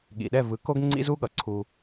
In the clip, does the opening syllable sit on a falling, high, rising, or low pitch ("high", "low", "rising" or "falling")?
low